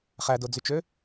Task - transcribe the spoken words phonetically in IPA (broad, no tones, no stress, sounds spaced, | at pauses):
χ æ d o d͡z y t͡ʃ ø